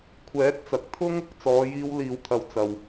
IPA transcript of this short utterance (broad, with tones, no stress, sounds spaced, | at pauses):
kʷʰ ɛː˨˥ t̚ t͡s ɐ˨ k̚ t̪ʰ ʊ˥ ŋ | t͡s ɔː˨˧ j iː˧ w l iː˨ w t̪ʰ ɐ˨ w t͡s ɐ˨ w